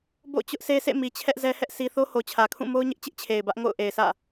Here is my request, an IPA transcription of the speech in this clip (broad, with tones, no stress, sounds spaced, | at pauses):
b o̰˦˨ t͡ɕ ʊ˦ ʔ sʰ e˦ sʰ ḛ˦˨ m i˨ t͡ɕʰ ɛ˦ ʔ z ɛ˦ h ɛ˦ ʔ s i˦ θ o˦ h o˨ t͡ɕʰ ä˨ kʰ ũ˦˨ m o˦ ʊ̯ ɲ ɪ˦ ʔ t͡ɕ ɪ˦ ʔ t͡ɕʰ e˨ ɪ̯ b ä˦ ʔ ŋ o̰˦˨ ʊ̯ ʔ e˨ ɪ̯ s ä̰˦˨